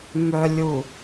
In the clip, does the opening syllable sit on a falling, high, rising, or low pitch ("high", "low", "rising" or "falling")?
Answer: low